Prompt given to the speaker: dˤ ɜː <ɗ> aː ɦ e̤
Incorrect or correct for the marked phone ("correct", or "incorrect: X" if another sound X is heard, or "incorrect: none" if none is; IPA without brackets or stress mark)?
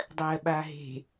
incorrect: ɓ